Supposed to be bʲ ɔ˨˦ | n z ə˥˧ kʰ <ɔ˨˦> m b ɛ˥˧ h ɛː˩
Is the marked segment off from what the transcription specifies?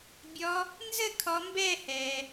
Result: no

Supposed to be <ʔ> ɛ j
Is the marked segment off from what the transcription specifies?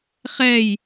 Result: yes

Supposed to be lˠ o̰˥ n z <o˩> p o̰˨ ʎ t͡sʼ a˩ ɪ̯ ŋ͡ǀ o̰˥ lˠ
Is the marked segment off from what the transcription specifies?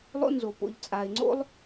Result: no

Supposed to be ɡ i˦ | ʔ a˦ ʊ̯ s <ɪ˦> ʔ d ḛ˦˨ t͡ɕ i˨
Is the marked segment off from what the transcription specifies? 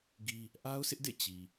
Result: no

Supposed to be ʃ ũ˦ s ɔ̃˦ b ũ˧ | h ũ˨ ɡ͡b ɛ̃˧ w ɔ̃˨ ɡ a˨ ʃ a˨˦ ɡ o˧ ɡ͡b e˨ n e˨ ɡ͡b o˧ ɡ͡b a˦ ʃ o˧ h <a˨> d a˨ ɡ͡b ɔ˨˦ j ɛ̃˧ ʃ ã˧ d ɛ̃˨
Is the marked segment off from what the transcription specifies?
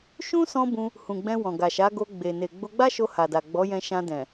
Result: no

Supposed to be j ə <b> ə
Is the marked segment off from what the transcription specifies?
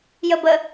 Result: no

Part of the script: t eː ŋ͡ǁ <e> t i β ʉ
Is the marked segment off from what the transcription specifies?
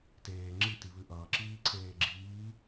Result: yes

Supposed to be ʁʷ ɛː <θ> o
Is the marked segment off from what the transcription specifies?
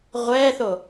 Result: no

